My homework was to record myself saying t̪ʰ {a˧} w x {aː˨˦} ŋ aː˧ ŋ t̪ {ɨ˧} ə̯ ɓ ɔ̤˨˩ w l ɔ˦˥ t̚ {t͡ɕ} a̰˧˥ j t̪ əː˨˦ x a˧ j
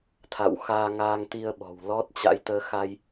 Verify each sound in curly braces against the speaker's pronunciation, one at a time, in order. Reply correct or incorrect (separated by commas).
incorrect, incorrect, incorrect, correct